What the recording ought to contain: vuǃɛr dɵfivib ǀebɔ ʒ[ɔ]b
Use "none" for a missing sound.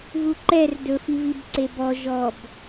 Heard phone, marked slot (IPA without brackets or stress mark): ɔ